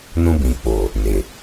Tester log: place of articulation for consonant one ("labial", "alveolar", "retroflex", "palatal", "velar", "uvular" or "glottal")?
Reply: alveolar